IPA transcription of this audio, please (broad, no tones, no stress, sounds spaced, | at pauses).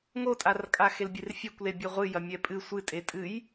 ŋ o tʼ a r kʼ a x e l bʲ e r fʲ e kʷ l e bʲ e ʁʷ ɨ j ɐ mʲ ɛ pʼ ɨ sʷ ɨ tʼ e tʼ ɨ j